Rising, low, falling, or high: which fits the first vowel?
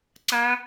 high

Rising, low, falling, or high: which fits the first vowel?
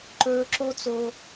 high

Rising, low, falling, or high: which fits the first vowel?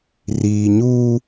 low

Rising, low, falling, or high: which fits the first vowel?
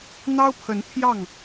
high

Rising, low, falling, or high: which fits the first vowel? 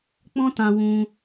high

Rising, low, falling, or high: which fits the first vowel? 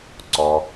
low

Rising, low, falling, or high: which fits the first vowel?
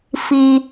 low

